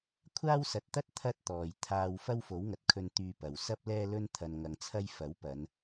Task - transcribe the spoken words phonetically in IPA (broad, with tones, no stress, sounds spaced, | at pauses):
kʷʰ aː˥ w s ɐ˨˥ t̚ t̪ ɐ˥ t̚ t̪ʰ ɐ˥ t̚ t̪ ɔː˨ j t̪ʰ aː˧ w f ɐ˥ w f o˨˥ w ŋ ɐ˨ t̚ kʰ ɵ˧ n t̪ yː˧ p ɐ˨ w s ɐ˥ p̚ l ɛː˥ l ɵ˥ n t̪ʰ ɐ˧ n ŋ ɐ˧ ŋ t͡sʰ ɐ˥ j f ɐ˨˥ w p ɐ˨˧ n